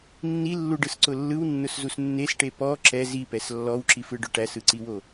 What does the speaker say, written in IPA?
nː i lː u ɖ ɯ s ǀ ʊ lː ɯ w nː ʊ s z u s nː e s ʈ e p ɔ ǁ ɛ z i p ɛ s lː ɔ w ǁ i f ɯ ɖ ʊ ʈ æ s ɯ ǀ i w o

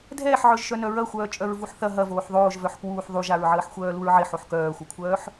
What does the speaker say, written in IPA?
dʱ ɛː ħ ʕ œ ʒ ʃ œ n œ ɹ ɐ xʷ œː t͡ʃʼ œ ɹ v u ħ θ ɐ ɦ ɐ v oː ħ ðˤ oː ʒ v œ ħ k w uː ħ ðˤ u ʒ a ɹ ʕ əː ħ xʷ œː l u ɹ ʕ ɪ ħ o ħ k œː xʷ ɐ kʷʰ œː ħ

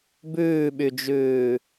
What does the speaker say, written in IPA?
b ʉː ɓ y d͡ʒ ʉː

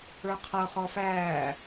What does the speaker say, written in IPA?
ə˞ qʰ ɤ χ ɔ f æː

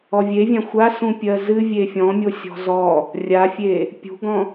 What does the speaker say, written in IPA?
ɔ vʲ e vʲ ã xʷ a s ũ pʲ ɜ z ɨ vʲ e fʲ ɔ̃ mʲ o sʲ ɔ̤ z ɔ | rʲ a fʲ e | pʲ ṳ ɡ ɔ̃

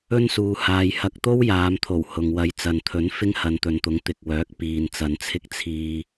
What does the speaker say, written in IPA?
ɵ˥ n s uː˨ h aː˨ j h ɐ˧ k̚ t̪ o˥ w j aː˨˧ m t̪ʰ o˨˩ w h ʊ˨ ŋ w ɐ˧ j t͡s ɐ˨ n t̪ʰ ɵ˨˥ n f ɪ˥ ŋ h ɐ˨˧ n t̪ ɵ˨˧ n t̪ ʊ˨˥ ŋ t̪ ɪ˨ k̚ w œː˨˥ k̚ p iː˨ n t͡s ɐ˨˧ n t͡sʰ ɪ˥ k̚ t͡sʰ iː˧

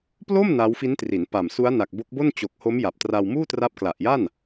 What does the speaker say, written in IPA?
p l o˥˩ m n a˦˥ w f i˦˥ n t r i˩˦ n p a˨˩ m s u˦˥ a̯ n a˨˩ k̚ b o˦˥ k̚ b o˥˩ n t͡ɕ o˨˩ k̚ h o˦˥ m j a˨˩ p̚ t r a˧ w m uː˥˩ t r a˦˥ p̚ k l a˨˩ ʔ j a˥˩ n

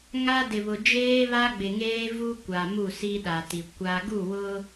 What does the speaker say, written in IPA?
ŋ a˦ d ɪ˨ β ʊ˨ d͡ʒ eː˦ β a˦ ɡ͡b ɪ˨ ŋ eː˦ v u˦ kʷ a˨ m u˦˨ s i˦ ɗ a˨ t i˨ kʷ a˦ ɡ u˦˨ w ʊ˦

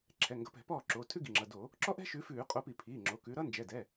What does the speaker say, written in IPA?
ǁʰ ɛ˩˧˩ ŋ ɡ ʌ˨˦ p ɛ̤˧˩˧ p ɔː˥˩ ǁ oː˩˧˩ tʰ ʉ˥ ɡ i˩˧˩ ŋ͡ǁ ʌ˩˧˩ d o˧˩˧ | ǁ ɔ˥ ʔ ɛ̤˥ ʃ ʉ˨˦ f ʉː˧˩˧ qʼ o˨˦ p i˧˩˧ pʰ iː˩˧˩ ŋ͡ǁ o˩˧˩ k ʉ˨˦ ɾ ʌ˥ n d͡ʒ ɛ˩˧˩ d ɛ˩˧˩

